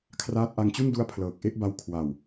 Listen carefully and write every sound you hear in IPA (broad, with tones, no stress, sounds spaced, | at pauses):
kʰ r aː˦˥ t̚ ʔ a˧ ŋ t͡ɕ u˥˩ n d u˦˥ a̯ pʰ l ɤː˨˩ k̚ ʔ e˦˥ ʔ b a˧ w kʰ w a˨˩ w